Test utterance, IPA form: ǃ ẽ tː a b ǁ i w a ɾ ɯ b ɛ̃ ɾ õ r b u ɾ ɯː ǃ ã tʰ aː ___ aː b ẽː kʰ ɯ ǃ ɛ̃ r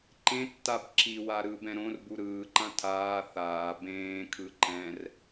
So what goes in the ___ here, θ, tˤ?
θ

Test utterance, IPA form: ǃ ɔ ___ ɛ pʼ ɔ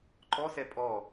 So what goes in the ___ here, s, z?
s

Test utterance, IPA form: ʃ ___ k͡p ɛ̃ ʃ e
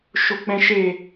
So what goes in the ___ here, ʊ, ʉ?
ʊ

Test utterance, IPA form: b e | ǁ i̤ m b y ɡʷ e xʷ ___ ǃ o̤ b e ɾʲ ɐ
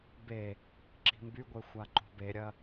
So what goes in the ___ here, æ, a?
a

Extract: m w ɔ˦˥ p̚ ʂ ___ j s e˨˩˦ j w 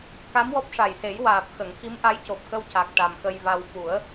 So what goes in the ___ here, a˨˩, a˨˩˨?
a˨˩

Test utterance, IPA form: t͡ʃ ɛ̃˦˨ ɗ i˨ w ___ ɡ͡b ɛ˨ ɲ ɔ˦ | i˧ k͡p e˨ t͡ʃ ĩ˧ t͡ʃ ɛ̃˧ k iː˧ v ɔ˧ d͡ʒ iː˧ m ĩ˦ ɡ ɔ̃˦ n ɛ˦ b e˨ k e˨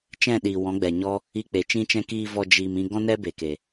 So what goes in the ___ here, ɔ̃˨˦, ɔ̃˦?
ɔ̃˨˦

